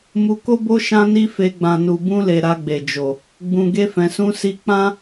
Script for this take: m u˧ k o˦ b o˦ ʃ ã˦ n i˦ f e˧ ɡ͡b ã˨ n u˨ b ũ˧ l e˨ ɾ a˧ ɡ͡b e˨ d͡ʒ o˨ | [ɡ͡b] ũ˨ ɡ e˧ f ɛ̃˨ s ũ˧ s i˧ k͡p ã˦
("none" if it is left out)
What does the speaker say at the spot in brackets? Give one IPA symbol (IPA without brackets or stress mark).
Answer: ɡ͡b